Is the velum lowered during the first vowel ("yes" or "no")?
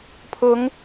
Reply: no